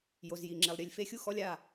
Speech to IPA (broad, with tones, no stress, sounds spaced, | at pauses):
j o˨ z j i˨ ŋ͡ǁ e˨ lˠ ɾʲ e˨ lʲ f e˦˨ xʲ u˦ x ɔ˧ lʲ a˦˨